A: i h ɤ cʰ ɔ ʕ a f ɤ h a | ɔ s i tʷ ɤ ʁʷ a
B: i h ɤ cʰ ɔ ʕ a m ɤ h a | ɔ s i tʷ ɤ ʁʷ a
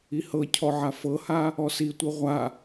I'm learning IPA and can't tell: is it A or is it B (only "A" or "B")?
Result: A